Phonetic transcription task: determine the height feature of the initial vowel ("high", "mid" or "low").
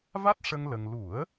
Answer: low